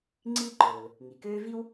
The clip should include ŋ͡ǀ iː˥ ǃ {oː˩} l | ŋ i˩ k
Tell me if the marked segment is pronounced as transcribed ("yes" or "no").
yes